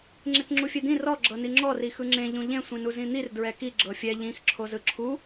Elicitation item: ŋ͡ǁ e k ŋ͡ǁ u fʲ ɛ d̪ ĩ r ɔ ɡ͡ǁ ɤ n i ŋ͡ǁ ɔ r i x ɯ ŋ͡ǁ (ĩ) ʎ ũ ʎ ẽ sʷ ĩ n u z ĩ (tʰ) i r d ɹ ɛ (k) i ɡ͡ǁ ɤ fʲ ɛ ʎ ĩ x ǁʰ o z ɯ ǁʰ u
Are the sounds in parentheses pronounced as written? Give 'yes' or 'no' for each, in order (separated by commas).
no, no, yes